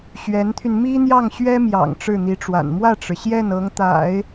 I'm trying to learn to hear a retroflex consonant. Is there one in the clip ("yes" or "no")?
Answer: yes